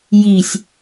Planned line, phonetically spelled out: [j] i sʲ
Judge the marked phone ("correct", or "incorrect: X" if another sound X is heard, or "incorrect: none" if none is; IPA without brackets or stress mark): correct